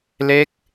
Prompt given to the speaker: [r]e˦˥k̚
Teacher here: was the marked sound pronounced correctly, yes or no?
no